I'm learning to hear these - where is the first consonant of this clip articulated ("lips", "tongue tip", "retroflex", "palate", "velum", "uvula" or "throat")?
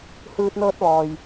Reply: throat